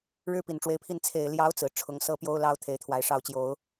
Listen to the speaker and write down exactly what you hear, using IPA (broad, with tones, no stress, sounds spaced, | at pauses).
ɻ ɻ̩˥ p i˨˩ n ʈ͡ʂ w e˧˥ ɪ̯ pʰ i˥˩ n t͡sʰ e˨˩ ɪ̯ l j ɑ˧˥ ʊ̯ t͡s ɹ̩˨˩ ʈ͡ʂʰ ʊ˧˥ ŋ s ɤ˥˩ p j o˥ ʊ̯ l ɑ˥ ʊ̯ t̪ʰ e˧˥ ɪ̯ t̪ʰ w a˧˥ ɪ̯ ʂ ɑ˥˩ ʊ̯ t͡ɕ j o˨˩˦ ʊ̯